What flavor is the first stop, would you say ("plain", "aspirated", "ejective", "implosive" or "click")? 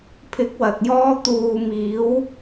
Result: aspirated